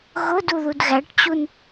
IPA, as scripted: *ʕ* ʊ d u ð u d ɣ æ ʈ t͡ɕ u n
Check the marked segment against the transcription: incorrect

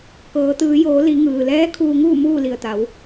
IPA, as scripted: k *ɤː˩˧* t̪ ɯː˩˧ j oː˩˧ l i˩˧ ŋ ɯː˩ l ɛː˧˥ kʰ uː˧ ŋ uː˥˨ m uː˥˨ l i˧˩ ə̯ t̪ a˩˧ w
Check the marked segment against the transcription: correct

